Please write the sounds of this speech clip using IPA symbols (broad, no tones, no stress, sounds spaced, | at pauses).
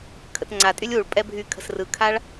kʰ ə̰ t ŋ͡ǀ a tʼ y lʲ u ɭ pʼ ɛ bʱ y kʰ ə̤ s r ɯ kʰ a ɭ